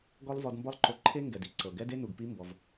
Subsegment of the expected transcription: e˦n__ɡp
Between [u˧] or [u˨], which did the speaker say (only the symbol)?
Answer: u˨